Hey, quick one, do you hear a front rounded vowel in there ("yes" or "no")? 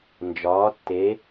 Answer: no